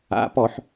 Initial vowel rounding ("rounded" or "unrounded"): unrounded